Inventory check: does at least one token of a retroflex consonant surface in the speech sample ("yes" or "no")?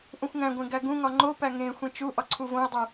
no